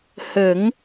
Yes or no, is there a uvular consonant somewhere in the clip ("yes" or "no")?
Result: no